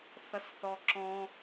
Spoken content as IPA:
θ ʌ s θ ɔ ǁ ɔ̃

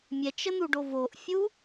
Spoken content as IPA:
mʲ ɛ t͡ʃ ə n̪ u ɖ o v o ʔ fʲ u

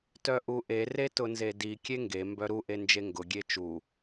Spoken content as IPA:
t œ ʔ u ʔ e r e t ʊ n z e d i kʲ e ŋ ɡ e m b œ ɾ u ʔ e n d͡ʒ e ŋ ɡ ʊ ɡʲ e t͡ʃ u

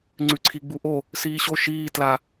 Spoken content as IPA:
ŋ͡ǀ ʉ ǀʰ i ɡ͡b u ʔ o | s iː ɕ o ʃ iː t l a

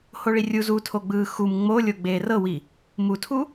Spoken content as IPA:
h o ɭ i rʲ u z u tʰ o ɡ͡b ɯː x u m ŋ͡m o lʲ o ɡ͡b eː r ɤ w i | m u tʰ u

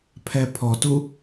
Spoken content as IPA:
pʰ ɛ pʰ ɔ t u

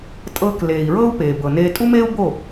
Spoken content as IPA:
tʼ ɤː˧ k l eː˩ i̯ ɹ ɤː˥ u̯ p eː˩ b ɤ˩ n eː˧ tʼ u˥ m eː˥ u̯ b o˥˩

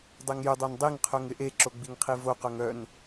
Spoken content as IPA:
dˤ e ŋ j ʏ dˤ œ n dˤ i ŋ qʰ œ ŋ ɪ ʔ e ǁ o ɡ͡b i ŋ qʰ i v o q œ ŋ œ n

